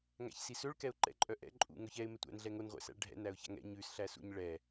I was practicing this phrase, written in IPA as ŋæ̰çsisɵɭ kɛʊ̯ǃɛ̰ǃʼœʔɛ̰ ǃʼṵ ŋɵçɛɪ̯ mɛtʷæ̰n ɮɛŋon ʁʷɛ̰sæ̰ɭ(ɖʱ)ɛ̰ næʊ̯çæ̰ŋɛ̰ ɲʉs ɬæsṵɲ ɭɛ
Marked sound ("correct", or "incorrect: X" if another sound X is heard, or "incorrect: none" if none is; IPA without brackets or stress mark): correct